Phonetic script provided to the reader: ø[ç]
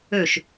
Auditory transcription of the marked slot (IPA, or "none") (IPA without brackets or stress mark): ʃ